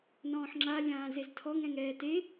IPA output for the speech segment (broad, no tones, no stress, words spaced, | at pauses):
nɔ̃ːħŋ͡ǁa lʲãːzeztʰɔŋ ɛ̃ŋɛːte